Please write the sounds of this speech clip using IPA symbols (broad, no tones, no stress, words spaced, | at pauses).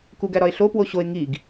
kuɡæ ɾɒe̯ɬopwo ɕoe̯ ŋiɡ